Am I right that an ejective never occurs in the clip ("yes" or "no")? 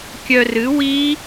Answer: yes